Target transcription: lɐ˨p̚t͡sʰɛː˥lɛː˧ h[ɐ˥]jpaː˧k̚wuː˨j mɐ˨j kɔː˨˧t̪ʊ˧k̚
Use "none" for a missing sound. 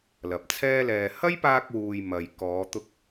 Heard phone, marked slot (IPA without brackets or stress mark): ɐ˥